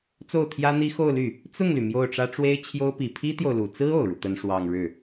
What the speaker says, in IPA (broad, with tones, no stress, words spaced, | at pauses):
t͡so˥˩ʊ̯t̪ʰjä˥n̪i˥ xo˥˧ʊ̯ly˥˩ | t͡sʊ˥˩ŋly˩ mjo˥˩ʊ̯ʈ͡ʂä˥ ʈ͡ʂwe˥ɪ̯t͡ɕʰjo˥ʊ̯ pi˨˩pʰi˥t̪jo˨ʊ̯lu˨˩ t͡sɹ̩˥ o˨˩ʊ̯ɻu˦t̪ə˥n ʂwɑ˥˧ŋɻɻ̩˥˩